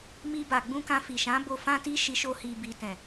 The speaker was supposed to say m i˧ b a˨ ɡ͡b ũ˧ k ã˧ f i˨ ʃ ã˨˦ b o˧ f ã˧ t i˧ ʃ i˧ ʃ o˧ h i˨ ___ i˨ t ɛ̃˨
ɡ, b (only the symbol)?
b